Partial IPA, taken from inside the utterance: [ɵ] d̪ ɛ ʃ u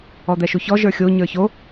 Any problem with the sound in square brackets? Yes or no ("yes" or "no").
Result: yes